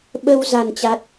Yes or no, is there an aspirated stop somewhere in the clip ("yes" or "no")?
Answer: no